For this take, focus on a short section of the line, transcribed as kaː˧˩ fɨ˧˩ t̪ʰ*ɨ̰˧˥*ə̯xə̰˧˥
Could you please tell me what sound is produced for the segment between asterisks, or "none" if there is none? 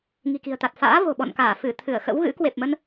ɨ˧˩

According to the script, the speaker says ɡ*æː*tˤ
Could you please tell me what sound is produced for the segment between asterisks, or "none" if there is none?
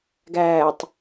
æː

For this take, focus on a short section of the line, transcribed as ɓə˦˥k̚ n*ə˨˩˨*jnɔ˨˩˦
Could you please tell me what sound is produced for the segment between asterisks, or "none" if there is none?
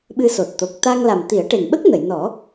ə˨˩˨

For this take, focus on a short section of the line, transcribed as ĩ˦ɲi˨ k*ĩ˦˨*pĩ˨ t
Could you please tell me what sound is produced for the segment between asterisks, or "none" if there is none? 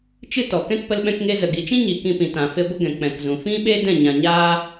ĩ˧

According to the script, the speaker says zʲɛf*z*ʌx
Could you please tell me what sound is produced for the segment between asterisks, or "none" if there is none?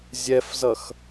z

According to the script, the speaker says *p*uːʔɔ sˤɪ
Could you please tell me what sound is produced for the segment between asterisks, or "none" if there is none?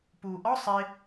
p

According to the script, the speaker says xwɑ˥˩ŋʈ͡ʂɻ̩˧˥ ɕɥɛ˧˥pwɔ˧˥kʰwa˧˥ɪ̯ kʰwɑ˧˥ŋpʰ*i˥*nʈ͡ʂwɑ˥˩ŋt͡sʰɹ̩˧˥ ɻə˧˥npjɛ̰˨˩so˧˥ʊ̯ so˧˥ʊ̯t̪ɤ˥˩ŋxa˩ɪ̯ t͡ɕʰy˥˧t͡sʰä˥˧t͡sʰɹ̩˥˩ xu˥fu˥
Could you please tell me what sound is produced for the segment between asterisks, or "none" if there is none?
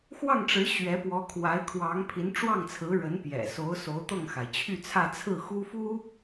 i˧˥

